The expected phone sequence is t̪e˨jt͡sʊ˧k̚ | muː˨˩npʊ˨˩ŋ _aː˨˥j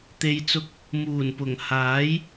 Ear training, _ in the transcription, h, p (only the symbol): h